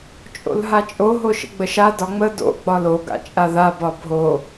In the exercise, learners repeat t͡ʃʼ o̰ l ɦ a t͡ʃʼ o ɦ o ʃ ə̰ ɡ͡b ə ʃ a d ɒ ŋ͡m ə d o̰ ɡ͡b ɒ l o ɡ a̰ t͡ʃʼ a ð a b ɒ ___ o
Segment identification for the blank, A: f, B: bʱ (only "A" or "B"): B